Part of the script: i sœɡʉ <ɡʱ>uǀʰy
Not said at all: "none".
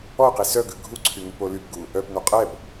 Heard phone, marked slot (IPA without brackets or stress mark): ɡʱ